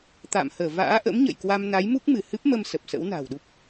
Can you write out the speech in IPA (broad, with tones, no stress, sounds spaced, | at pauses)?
t̪ a̰ː˧˨ m h əː˧˩ v a̰ː˧˥ ʔ ə̰˧˥ m ɲ ə̰˧˨ j k w a˧ m n a˨˦ j m u˦˥ k̚ m ɨ˧˩ h ɨ˦˥ p̚ m ə˧ m s ə˨˩ p̚ s ə̰˧˥ w n a̤ː˨˩ w ɗ u˦˥ p̚